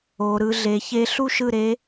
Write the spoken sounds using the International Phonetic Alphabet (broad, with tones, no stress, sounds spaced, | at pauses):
o˦˥ ɾ ɯ˦˥ ɮ e˦˥ ç e˦˥ ɬ u˥˧ ʃ ɯ˥˧ ɾ e˦˥